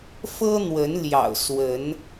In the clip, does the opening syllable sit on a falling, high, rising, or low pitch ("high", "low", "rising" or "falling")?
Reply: high